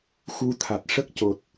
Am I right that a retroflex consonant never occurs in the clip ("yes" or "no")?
no